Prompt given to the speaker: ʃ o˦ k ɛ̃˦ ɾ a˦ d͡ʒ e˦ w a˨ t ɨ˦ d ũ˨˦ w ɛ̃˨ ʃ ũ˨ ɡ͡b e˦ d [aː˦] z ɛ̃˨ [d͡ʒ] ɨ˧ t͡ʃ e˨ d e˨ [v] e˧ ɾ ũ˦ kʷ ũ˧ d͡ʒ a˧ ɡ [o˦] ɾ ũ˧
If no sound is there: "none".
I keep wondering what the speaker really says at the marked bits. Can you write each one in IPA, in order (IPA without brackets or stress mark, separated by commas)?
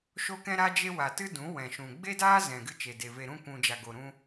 aː˦, ɡ, v, o˧